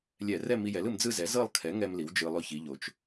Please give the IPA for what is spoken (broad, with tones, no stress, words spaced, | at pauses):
lʲɛ˧˩˧rɛ˥˧mi˧jɛ˩˥l ɯ˩˧m d͡zɯ˥˧zɛ˩˥ zɤ˥˧lˠkʰɛ˩˥ŋɛ˧m li˩˥wd͡ʒɯ˧lˠo˥˧ çi˩˧ ʎo˩˧t͡ʃ